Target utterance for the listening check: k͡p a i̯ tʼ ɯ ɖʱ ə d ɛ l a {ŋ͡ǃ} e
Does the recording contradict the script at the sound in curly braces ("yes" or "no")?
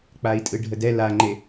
no